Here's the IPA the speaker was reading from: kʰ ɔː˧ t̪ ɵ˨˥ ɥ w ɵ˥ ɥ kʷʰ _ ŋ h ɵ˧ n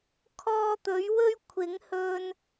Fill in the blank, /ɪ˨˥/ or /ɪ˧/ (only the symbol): ɪ˨˥